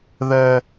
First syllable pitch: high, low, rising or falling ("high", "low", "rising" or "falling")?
high